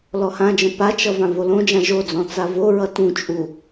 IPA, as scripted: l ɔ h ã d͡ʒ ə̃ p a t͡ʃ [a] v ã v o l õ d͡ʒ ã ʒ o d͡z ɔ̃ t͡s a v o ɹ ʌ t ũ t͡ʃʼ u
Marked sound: incorrect: ʌ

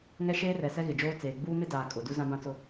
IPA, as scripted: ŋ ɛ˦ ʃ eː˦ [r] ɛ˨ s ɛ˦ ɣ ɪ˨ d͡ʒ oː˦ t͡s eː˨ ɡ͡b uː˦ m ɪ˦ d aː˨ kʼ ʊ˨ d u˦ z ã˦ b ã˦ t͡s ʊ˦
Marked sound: correct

